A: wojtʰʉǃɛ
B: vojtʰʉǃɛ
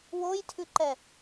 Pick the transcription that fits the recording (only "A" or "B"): A